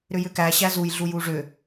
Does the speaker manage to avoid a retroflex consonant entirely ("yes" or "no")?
no